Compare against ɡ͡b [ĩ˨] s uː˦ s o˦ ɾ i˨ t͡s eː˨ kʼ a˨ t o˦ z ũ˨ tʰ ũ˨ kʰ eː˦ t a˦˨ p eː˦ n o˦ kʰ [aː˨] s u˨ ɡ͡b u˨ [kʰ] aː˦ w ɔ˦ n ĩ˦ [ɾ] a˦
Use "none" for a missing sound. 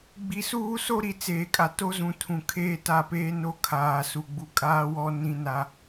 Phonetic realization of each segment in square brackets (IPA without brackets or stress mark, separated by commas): i˨, aː˨, kʼ, n